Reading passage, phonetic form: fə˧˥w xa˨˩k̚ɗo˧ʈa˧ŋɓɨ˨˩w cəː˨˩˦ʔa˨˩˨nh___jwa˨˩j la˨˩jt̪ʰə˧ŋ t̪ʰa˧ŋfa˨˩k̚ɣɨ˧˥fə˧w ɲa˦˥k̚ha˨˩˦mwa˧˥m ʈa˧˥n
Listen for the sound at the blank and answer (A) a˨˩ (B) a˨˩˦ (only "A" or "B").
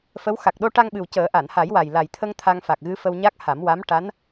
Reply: B